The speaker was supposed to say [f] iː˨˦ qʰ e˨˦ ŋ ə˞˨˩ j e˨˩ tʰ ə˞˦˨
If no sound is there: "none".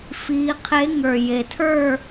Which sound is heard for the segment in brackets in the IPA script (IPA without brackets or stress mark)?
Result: f